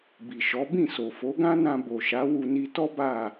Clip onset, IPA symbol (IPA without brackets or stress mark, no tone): b